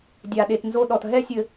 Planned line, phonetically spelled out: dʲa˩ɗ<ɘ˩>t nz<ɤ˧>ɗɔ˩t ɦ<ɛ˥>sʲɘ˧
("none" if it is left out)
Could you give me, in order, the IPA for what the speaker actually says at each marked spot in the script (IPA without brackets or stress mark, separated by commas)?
e˩, o˧, ɛ˥